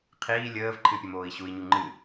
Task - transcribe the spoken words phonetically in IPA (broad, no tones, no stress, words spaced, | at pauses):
qʰiː lʲəːvǃʰɨpʲə moːi̯ɕui̯ɲu ŋ͡ǃɨ